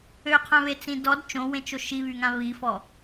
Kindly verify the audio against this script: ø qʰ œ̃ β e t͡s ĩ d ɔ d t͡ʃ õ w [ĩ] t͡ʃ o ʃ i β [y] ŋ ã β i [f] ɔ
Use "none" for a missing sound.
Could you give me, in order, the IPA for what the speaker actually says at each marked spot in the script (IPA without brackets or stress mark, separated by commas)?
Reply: ẽ, y, f